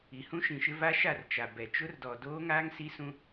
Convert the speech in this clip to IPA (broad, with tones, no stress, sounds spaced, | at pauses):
i˨ h ũ˦ ʃ ĩ˨ ʃ ɪ˦ v a˦ ʃ a˦˨ r t͡ʃ a˨ b ɛ˨ t͡ʃ ʊ˦ r d ɔ˨ d oː˦ ŋ aː˦ ŋ s i˦ s ũ˦